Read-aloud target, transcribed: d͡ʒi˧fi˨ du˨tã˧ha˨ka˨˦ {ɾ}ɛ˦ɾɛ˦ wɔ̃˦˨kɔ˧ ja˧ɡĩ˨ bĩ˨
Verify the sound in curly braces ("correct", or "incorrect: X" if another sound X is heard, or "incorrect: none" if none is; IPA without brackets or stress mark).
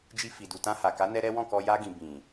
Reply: incorrect: n